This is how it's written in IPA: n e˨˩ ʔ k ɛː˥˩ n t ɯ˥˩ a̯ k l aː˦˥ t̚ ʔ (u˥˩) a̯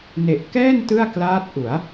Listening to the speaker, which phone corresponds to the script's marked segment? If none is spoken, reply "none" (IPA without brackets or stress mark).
u˩˦